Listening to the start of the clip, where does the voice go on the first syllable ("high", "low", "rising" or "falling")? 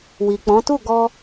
low